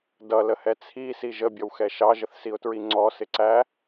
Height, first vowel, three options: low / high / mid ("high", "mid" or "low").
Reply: mid